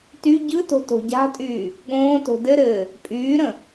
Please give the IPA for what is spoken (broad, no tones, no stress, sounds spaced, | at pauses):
t y ɟ ɯ t o̤ t o̤ ɟ a̤ tʼ yː | ɠ õː t o̤ d ɘ ɾ ɘː | pʼ yː ɾ ə̃